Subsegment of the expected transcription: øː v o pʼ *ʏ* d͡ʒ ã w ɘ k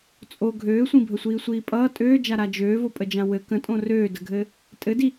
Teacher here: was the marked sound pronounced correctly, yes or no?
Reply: no